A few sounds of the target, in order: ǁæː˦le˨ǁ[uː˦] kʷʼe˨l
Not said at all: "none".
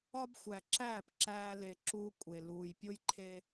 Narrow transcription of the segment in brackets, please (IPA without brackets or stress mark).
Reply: uː˦